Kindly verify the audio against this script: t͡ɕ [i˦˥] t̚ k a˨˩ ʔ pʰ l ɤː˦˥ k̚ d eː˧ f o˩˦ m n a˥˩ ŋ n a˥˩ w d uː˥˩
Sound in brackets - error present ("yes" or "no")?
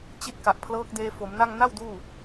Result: no